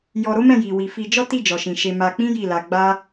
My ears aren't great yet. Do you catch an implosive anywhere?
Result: no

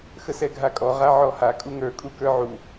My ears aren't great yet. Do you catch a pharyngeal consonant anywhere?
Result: yes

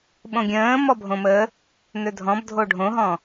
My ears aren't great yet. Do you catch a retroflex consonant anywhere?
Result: yes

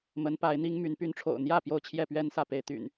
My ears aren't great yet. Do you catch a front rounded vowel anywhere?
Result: yes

